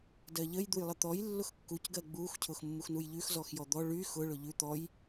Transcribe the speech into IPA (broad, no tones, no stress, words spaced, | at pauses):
dɜʎəj d̪ujlˠət̪ɔj lːʊxkːuc ɡɜɡ͡bux cʰʊxmːuxnujʎʉx zɔxjɔd̪ɔ ɭy xʊ ɭʊʎʉ t̪ɔj